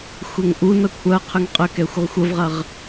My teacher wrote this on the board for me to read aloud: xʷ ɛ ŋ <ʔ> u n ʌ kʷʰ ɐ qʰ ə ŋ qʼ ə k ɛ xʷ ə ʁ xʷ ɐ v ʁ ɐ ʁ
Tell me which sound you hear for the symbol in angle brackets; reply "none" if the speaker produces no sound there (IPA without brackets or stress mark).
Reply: ʔ